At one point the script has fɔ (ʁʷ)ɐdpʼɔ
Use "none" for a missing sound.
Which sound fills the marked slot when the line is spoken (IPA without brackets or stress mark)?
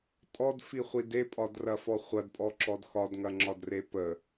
χʷ